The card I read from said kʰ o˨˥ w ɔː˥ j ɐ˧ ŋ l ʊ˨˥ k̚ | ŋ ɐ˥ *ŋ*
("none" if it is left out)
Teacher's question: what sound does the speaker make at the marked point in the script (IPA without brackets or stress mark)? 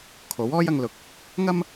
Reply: m